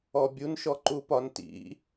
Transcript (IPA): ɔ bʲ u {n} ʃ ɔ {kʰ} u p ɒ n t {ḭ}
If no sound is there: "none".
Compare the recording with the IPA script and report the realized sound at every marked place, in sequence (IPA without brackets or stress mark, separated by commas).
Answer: n, ǃ, ḭ